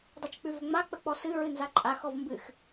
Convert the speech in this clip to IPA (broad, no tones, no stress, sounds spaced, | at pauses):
dˤ ɨ t͡ʃ k͡p ʉ v ʏ ŋ͡m a k͡p ə k͡p ɔ s ɨ ɹ ɨ n z a ǃʼ a x ɔ v m b ɨ x